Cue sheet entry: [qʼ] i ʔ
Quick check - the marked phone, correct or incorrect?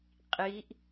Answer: correct